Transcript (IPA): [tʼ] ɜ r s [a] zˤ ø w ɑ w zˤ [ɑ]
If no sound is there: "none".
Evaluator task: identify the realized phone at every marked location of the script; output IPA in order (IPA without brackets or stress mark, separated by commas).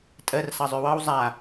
tʼ, ɑ, a